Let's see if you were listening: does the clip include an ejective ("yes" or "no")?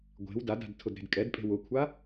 yes